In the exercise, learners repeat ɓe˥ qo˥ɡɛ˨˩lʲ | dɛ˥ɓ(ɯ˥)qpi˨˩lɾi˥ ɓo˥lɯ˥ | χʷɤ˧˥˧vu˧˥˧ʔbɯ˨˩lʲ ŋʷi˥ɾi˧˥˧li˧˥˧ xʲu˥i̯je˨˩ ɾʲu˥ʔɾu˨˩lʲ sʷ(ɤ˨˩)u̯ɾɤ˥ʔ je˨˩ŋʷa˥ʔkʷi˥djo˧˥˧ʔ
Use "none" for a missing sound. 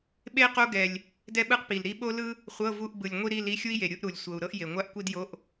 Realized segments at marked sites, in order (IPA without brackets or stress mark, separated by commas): ɯ˥, ɤ˨˩